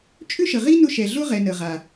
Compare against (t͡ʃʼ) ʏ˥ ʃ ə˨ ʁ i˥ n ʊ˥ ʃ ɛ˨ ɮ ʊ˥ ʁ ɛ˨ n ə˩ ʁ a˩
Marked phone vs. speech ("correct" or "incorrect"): correct